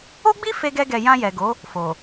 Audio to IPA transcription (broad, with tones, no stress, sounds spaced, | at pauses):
o˦ ɡ͡b i˦ f e˦ ɡ ɛ˦ ɡ ɛ˧ j ã˧ j ɛ˨ ɡ o˨˦ | f o˨